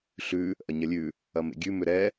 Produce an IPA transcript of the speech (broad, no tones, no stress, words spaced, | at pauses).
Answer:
ɬʉ | ʔɐɲɐlʲʉ | ɐmḛɡʲʉ mʏɾɛ